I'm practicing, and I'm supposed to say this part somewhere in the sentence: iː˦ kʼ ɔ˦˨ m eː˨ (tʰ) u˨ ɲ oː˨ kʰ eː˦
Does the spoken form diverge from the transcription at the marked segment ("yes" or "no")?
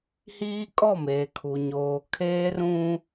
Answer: yes